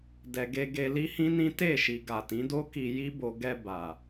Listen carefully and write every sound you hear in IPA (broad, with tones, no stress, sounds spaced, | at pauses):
d ɛ˨ ɡ e˧ ɡ e˧ l i˦ h ĩ˦ n ĩ˦ t e˦˨ ʃ i˨ ɡ a˨ t ĩ˨˦ d o˦ k i˧ j i˦ b o˧ ɡ ɛ˧ b a˨